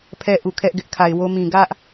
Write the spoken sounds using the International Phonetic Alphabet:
pʰ ɛ˦ ʔ u˨ kʰ ɛ˦ ʔ ɡ ɪ˦ ʔ kʰ a˨ ɪ̯ w o˦ m ĩ˨ ɡ ä˦ ʔ

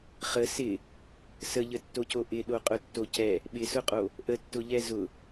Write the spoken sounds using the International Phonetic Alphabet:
χ ə s ɪ | s ə ʎ ə tː o cʰ o ʔ ɪ ɗ o qʼ ʊ tː o cʰ ɛ | ɓ ɪ s ʊ qʼ o | ʔ ə tː ʊ ʎ ɛ z ʊ

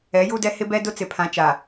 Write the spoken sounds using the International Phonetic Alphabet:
ɛ˨˦ j u˦ d ɛ˦ h ɪ˦ b ɛ˦ d ʊ˦ t͡s ɪ˨ pʰ ã˨˦ t͡ʃ a˨

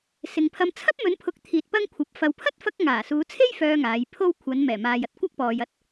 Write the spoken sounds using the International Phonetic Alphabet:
s ɪ˨ ŋ pʰ ɐ˧ m t͡sʰ ɐ˥ p̚ m ɵ˨˧ n pʰ ʊ˨˥ k̚ t̪ʰ iː˨ t̚ p ɐ˥ ŋ kʷʰ ɐ˨˥ p̚ f ɐ˨ w pʰ ɐ˥ t̚ f ɐ˧ k̚ ŋ aː˨˩ s uː˨˧ t͡sʰ e˥ j f œː˧ ŋ aː˨˧ j pʰ o˥ w kʷʰ ɐ˨˧ n m ɛː˨˩ m aː˨ j ɐ˥ t̚ kʷ ɐ˥ k̚ p ɔː˨ j ɐ˥ t̚

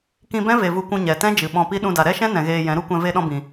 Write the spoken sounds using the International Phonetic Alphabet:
k ĩ˧ b ɛ̃˦ v e˧ v u˧ kʷ ũ˧ ɲ ɛ˨ t ɛ̃˦ d͡ʒ ɨ˨ ɓ ɔ̃˧ p i˦ ɗ ũ˧ d a˨ ɾ ɛ˦ ʃ ɛ̃˦ n ɛ̃˨ ɣ eː˧ j ɛ̃˨˦ ɾ u˦ kʷ ɛ̃˧ v e˧ ɗ ɔ̃˧ b ĩ˨

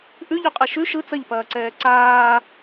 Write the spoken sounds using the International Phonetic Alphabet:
ʔ ʉ ʎ ʉ qʼ ɛ ʃ ʉ ʃ ɯ t͡s ɐ ʎ p ɐː ǀ ɛː ǀ aː

